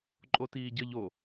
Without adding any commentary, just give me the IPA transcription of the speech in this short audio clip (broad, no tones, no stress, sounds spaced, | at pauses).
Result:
ǃʼ o t iː ɟ ə ʎ o